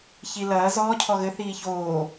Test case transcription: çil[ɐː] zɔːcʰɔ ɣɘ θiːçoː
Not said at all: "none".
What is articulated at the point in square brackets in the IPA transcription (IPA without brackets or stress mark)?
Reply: ɐː